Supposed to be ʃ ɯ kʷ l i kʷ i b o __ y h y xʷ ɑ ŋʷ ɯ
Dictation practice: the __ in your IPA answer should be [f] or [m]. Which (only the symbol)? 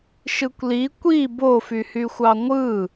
f